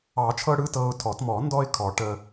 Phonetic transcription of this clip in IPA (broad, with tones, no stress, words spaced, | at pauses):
ɑ˨˩˦t͡ʃʰɤ˧ ɽɯ˧˥˧tɤː˧ʊ̯tʰɔ˨˩˦t mɔ˨˩˦ndɔ˧ɪ̯ kʰɔ˨˩˦ ʈə˧